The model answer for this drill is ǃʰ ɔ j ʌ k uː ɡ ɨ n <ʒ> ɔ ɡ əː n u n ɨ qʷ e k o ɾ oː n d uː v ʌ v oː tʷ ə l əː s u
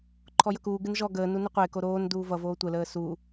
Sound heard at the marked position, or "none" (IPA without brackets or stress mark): ʒ